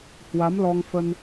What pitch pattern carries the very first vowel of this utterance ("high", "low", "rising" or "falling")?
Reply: rising